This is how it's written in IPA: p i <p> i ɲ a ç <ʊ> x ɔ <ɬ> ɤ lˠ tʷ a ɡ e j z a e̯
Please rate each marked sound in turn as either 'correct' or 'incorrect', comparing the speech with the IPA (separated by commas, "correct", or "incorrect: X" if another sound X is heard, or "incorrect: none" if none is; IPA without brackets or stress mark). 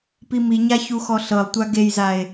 incorrect: m, incorrect: u, correct